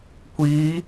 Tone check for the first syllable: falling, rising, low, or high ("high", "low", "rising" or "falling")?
rising